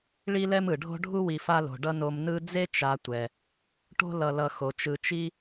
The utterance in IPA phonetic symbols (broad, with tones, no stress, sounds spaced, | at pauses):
ɭ i˦ l ɛ˦ m ɯ˩ ɖʱ o̤˥ ɖʱ u˥ w i˨ f a˦ l o̤˩ ɖ ʌ˦ n o˨ m n ɯ˦ d͡z e˥ t͡ʃ a˨ tʷ ɛ˩ | ʈ o̤˦ l ʌ˨ l ʌ˨ x o˩ t͡ʃ ɯ˨ t͡ʃ i˥